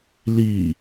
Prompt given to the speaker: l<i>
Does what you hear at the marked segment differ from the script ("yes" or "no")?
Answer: no